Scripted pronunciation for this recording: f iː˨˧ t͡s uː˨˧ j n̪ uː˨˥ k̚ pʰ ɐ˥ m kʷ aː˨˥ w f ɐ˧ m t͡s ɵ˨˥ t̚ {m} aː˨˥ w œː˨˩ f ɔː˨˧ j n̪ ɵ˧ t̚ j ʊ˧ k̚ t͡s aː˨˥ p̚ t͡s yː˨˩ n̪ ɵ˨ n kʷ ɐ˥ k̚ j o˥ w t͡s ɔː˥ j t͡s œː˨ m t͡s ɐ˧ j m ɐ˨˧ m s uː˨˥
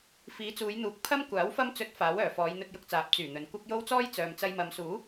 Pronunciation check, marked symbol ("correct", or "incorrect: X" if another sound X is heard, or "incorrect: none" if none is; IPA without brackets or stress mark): incorrect: f